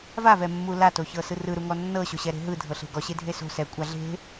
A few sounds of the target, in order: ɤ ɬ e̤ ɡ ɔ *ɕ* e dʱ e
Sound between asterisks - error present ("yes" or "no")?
no